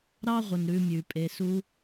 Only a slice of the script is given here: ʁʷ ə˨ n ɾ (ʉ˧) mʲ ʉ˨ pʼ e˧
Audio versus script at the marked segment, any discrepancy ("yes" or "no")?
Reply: no